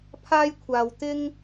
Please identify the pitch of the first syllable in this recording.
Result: high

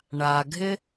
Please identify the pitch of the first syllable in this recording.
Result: low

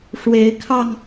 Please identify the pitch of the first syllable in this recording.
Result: rising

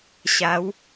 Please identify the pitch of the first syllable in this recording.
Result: rising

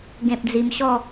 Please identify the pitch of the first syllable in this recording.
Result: low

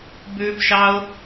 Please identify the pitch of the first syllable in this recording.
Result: high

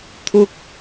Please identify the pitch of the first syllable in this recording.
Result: high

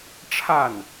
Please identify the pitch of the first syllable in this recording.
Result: falling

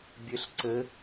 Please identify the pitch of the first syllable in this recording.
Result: rising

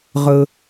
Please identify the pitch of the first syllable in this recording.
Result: low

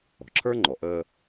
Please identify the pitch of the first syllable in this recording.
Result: low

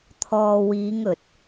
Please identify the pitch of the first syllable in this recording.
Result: low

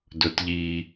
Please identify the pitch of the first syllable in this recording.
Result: low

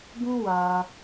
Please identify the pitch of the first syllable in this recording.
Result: high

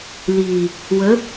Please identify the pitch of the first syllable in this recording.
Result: low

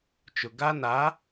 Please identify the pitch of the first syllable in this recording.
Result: low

